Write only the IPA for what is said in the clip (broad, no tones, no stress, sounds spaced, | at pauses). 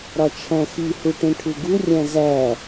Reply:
ɾ ɒ t͡ʃʰ æ̃ x i h u ʈ ẽ ʈʰ u ɡ u rʲ æ̃ z æ